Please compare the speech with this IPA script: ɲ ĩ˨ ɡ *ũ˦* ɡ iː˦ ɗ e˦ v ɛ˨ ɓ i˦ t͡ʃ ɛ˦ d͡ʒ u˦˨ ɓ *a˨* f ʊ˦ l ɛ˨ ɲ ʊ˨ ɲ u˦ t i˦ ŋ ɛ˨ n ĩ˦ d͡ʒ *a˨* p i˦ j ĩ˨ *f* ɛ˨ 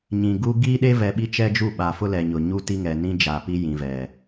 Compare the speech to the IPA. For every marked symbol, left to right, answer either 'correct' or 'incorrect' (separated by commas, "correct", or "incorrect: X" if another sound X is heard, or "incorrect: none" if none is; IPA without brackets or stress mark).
incorrect: u˦, correct, correct, incorrect: v